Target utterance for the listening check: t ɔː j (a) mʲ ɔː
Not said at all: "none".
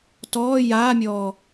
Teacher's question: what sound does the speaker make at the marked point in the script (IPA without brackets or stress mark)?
aː